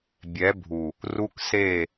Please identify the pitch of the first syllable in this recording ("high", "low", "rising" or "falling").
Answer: rising